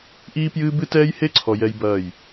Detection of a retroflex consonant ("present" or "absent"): absent